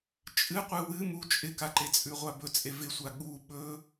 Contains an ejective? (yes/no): yes